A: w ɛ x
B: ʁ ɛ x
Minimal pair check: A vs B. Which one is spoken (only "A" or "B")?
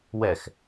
A